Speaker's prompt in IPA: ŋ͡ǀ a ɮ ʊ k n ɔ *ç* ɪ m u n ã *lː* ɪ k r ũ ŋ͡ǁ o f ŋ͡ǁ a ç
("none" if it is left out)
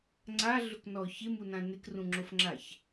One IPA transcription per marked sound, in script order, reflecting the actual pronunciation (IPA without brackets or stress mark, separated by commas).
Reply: ç, n